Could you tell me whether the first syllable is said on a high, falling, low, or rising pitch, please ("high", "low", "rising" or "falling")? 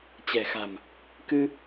low